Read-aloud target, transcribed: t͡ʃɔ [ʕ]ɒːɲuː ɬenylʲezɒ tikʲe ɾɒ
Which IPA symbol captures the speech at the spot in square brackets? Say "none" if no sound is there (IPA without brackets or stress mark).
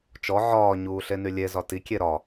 ʕ